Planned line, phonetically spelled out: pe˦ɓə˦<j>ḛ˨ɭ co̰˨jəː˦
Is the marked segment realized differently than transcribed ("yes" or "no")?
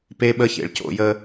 yes